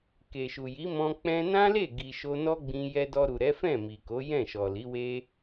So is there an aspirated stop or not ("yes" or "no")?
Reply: no